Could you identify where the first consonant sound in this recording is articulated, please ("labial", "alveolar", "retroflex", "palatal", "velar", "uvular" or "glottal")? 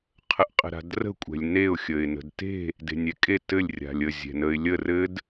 uvular